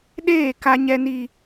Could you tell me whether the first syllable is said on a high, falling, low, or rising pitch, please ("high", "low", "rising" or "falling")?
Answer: falling